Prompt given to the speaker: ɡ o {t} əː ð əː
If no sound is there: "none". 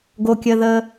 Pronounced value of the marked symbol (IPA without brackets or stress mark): kʲ